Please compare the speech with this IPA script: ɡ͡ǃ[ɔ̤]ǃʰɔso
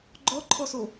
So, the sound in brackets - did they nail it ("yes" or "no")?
no